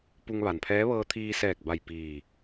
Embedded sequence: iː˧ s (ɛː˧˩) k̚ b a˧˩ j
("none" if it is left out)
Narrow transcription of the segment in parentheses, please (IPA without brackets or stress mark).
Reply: ɛː˧˩